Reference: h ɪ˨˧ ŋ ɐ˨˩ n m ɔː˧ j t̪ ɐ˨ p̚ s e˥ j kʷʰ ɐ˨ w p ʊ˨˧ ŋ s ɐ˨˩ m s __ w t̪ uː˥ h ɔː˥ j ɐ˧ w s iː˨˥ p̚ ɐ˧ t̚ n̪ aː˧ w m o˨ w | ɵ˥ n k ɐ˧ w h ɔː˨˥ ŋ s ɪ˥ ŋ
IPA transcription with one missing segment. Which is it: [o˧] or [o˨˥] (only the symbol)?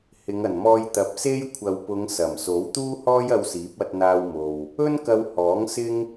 o˨˥